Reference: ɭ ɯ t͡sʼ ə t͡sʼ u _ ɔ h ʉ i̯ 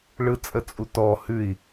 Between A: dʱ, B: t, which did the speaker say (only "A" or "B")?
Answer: B